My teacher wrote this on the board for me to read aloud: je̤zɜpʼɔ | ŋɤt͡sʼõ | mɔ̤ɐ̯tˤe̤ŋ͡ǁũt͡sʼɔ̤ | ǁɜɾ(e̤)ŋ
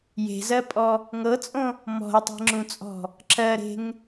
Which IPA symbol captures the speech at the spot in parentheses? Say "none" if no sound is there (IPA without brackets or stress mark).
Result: e̤